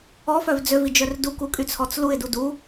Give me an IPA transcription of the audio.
ɔfœv d͡zøvid͡ʒœr dukukʼyt͡sʰɔt͡s luɪ̯du du

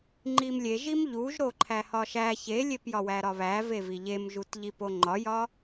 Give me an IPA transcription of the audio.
ŋ͡ǃimlʲeʒim ʎuʒɾo ǃʰæhɒʃæ çelʲepjɒwæ ɾɒβævevi ʎemʒut ʎipoŋ͡ǃɒjɒ

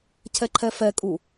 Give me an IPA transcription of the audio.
cʰɛǃʰɛfɛkʼu

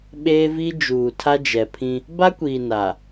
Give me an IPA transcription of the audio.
ɓeː˦vi˦ d͡ʒuː˨tʰa˦d͡ʒɛ˨ pʰĩ˦ | ba˦kʷiː˨ na˨

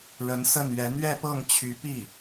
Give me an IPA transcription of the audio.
ɻə˧˥nsə˥˩nɥɛ˧˥ n̪ɥɛ˥˧pɤ˥˩ŋt͡ɕʰy˧˥pi˥˩

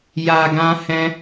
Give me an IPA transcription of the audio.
ja˨ ɡã˧hɛ̃˧

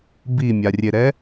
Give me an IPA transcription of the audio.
bimʲarʲeɾɛ

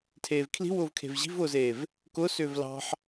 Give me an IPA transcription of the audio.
tʰeːvkʰli̤wʊːvkʰe̤v ʑi̤vʊːzeːv | kʊ sʏːvlɑ̤ħ

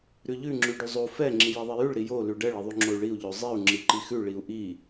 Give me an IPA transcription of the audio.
ɾʉʎʉ ŋ͡ǁʉɖʉzˤo fɛ ŋ͡ǁijiðˤɛjʉɭ ɾijo lʉɖɛɭ iðˤʉŋ͡ǁoy̯ɭiu̯ ʎozˤiu̯ ŋ͡ǁiǃixʉ ɭiu̯ʔi

